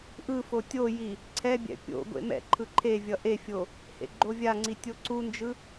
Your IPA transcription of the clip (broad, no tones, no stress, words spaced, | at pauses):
ʔɯfo tʲoji | ǀʰɛbʲɛ̰ pʲo̰ ɡʷḛmɛ̰ǃʰɯ ǃʰevʲʌ ʔefʲo | hḛɡ͡ǃovʲaŋ͡ǀi tʲoǀund͡ʒɯ